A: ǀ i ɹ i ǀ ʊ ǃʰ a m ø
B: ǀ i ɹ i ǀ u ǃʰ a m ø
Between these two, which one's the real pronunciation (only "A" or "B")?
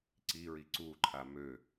B